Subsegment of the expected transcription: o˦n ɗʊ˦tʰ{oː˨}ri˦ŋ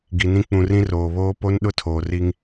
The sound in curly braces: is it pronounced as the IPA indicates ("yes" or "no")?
yes